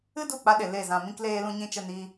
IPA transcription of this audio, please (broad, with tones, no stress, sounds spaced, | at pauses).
ɨ˦ d u˦˨ k͡p a˧ ɗ e˨ l e˦˨ z ã˧ m ĩ˧ k l eː˧ l ũ˧ ɲ ĩ˧ t͡ʃ ə˧ n iː˧